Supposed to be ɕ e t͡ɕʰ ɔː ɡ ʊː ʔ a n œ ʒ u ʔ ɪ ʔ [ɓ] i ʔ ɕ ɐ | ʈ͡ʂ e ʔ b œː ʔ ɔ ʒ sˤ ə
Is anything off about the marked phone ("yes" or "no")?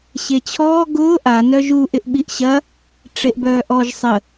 no